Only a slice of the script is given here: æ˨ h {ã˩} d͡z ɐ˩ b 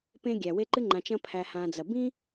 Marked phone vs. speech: incorrect: ã˨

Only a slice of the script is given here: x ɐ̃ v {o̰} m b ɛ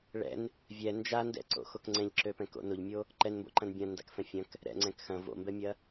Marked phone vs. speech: correct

